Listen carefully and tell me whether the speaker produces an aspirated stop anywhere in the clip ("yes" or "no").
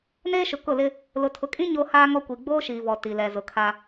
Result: yes